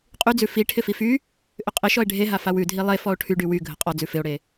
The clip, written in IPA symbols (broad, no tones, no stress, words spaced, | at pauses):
qʼyd͡zʉ fi ʈʰɪfify | ʔʏqʼɪʃɔe̯ ɖʱeɦa fawʉdʱi lˠefɔo̯ ʈʰyɖy wy ɡʱəqʼɔd͡zʉ fɪo̯ɽe